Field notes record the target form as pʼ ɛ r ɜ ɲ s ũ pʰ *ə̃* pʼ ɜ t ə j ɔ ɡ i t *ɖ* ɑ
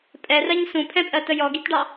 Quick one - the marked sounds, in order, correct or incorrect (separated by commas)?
incorrect, correct